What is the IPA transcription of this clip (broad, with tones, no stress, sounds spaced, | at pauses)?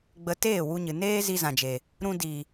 ɡ͡b ə˧ t eː˦˨ w u˧ ɲ ɨ˨ n eː˦ z i˧ z ã˨ d͡ʒ e˨ | ɾ ũ˦ d i˨